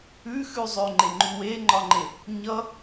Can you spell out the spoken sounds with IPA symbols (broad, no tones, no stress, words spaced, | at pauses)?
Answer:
ʉxʉzˤøŋ͡ǃe ŋ͡ǃʉweŋ͡ǃɒŋ͡ǃe | ɲʌ